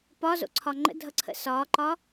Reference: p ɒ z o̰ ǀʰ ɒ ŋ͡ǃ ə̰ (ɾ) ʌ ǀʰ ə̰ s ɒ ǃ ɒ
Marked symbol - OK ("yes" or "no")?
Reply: no